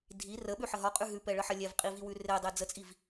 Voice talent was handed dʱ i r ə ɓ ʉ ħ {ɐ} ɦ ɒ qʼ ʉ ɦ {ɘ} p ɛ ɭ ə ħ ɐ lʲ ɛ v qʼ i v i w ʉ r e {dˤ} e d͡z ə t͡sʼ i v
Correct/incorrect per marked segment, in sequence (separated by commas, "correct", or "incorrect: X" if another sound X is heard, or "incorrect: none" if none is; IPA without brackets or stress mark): incorrect: ə, incorrect: ʉ, correct